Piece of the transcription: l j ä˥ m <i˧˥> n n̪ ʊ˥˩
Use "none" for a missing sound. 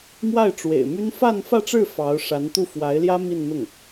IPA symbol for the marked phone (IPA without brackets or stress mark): i˥˧